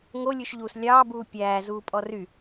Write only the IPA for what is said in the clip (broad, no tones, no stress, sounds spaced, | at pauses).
ŋ o lʲ ʉ ʃ ʎ uː s lʲ ɑː b uː pʲ æː z uː pʼ ɔ r y